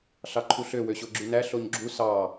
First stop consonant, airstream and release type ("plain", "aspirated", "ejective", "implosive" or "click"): click